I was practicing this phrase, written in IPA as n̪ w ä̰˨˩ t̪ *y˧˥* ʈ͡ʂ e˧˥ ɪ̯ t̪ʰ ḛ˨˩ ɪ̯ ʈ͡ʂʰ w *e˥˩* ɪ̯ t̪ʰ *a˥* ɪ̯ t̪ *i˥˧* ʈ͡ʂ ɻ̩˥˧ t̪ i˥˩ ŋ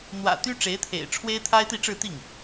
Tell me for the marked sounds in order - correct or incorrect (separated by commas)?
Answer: incorrect, incorrect, correct, correct